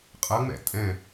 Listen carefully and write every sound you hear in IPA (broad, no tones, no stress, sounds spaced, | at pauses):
qʼ ɐ ŋ͡m ɛ̰ tʼ ɛ̃